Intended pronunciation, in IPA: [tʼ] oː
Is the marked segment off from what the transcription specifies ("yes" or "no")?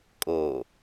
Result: yes